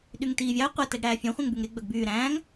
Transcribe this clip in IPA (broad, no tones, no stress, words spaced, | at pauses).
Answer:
ɗyŋtiːvʲɑə̯ qʷætɛɡ ɽæːfʲœ̃χʷẽŋbyŋ ɾe ɡ͡bœɡbyː ɾæ̃ːŋ